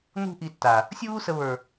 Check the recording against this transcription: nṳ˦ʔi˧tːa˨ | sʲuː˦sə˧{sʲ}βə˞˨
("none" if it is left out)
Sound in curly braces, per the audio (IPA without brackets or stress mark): none